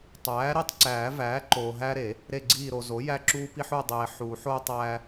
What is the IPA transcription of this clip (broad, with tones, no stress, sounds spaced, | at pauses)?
tˤ æː˩˥ ɾ i˦˨ tˤ ǀ æː˨˩˦ v æː˩˥ ǃ oː˨ ɦ æ˦ ɾ e˨˩˦ | ɾ e˦˨ ɡ͡ǀ iː˦˨ ɾ o˨ z o˩˥ j æ˦ ǁ uː˦ p i˦ ħ u˦˨ dˤ eː˨ ħ u˨˩˦ ħ oː˦ tˤ æː˦